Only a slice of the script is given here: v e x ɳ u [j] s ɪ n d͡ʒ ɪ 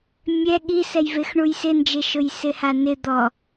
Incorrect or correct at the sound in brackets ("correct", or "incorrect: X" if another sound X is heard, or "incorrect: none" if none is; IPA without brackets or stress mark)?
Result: correct